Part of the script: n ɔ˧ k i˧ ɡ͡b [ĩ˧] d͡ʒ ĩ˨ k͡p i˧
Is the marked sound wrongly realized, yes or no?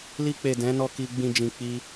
no